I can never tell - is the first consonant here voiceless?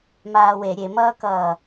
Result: no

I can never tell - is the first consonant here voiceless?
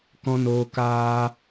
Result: yes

